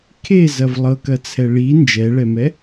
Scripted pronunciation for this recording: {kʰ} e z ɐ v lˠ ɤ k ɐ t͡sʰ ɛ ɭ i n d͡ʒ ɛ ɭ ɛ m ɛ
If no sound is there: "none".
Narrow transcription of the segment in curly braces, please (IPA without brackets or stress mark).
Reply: kʰ